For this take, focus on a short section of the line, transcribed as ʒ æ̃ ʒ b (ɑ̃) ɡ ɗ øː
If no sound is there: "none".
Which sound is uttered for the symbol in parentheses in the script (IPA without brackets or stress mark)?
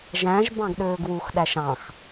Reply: ɑ̃